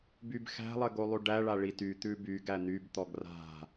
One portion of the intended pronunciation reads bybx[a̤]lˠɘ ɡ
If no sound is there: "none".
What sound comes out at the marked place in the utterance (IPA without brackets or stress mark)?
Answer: æ̤